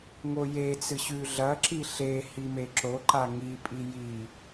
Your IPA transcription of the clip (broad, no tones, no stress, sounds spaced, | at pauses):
ŋ o j e t͡s ɨ ɕ ʉ ɮ ɐ ǁ i ɬ e h i m e ǁ o ǃ a ŋ i pʼ i j i